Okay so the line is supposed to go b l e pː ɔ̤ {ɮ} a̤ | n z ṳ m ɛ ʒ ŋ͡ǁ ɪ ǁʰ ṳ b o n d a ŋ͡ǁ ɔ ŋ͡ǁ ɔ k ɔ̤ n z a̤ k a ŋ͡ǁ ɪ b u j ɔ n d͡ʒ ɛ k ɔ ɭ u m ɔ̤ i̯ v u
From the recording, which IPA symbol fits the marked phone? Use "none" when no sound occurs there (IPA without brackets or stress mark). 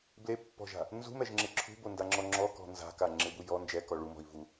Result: ʒ